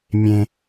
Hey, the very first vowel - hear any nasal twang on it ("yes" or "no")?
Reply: yes